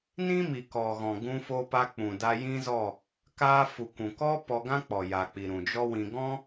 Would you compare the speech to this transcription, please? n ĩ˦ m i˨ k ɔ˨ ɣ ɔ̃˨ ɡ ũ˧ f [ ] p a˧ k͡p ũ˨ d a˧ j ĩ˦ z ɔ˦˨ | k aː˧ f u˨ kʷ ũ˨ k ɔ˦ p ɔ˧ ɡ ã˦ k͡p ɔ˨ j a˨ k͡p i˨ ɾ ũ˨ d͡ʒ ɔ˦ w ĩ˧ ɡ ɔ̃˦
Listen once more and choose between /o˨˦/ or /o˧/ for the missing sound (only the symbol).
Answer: o˧